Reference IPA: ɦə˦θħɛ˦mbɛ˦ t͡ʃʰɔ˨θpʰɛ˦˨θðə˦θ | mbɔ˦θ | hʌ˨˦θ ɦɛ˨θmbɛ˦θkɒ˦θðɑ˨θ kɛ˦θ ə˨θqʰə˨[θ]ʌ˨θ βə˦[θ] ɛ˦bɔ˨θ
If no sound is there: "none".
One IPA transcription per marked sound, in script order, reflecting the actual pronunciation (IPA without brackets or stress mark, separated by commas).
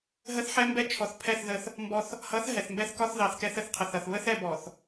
θ, θ